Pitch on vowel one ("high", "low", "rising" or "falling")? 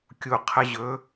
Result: low